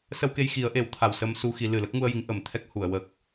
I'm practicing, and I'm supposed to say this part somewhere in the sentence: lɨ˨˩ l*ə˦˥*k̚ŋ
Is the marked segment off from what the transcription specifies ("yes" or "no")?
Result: no